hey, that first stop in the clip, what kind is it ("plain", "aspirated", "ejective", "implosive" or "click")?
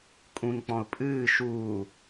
ejective